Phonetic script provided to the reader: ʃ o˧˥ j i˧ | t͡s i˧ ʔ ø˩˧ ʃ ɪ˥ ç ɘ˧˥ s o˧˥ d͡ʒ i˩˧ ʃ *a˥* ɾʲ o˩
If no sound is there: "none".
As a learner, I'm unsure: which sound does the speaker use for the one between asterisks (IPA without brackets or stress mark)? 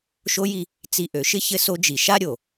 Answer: a˥